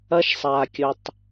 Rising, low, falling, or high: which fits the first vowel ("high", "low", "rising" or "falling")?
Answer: high